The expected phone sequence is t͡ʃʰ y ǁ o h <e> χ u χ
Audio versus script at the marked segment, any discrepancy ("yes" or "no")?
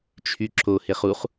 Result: no